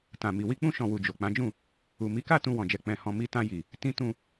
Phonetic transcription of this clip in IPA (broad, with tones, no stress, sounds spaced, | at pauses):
t ã˨ m i˨ w i˧ k͡p ũ˧ ʃ ɔ̃˨ w u˨ d͡ʒ o˨ k͡p ã˨˦ d͡ʒ ũ˦˨ | u˨ m i˨˦ k a˦˨ t ũ˧ w ɔ̃˨ d͡ʒ ɛ˨ k͡p ɛ̃˨ h ɔ̃˨ m i˧ t ã˧ j i˨ | t ĩ˧ t ũ˧